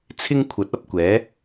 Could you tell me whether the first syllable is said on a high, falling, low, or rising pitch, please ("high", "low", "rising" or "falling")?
high